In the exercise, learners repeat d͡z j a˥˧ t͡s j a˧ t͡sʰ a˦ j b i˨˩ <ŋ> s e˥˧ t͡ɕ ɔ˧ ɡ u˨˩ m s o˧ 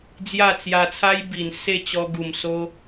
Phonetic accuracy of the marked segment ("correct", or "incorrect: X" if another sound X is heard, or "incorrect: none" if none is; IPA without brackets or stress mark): incorrect: n